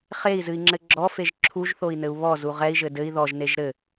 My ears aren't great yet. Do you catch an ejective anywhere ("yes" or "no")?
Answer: no